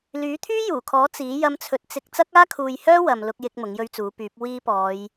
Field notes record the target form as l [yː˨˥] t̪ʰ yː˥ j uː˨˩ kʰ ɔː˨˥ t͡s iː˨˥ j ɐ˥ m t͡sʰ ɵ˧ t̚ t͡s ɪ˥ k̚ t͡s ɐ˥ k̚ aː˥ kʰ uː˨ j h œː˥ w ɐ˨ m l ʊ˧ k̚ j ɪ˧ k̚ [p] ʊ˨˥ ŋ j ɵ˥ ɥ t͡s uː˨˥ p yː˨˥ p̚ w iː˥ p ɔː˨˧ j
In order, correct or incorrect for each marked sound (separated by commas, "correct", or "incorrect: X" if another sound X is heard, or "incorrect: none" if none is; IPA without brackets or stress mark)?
correct, incorrect: m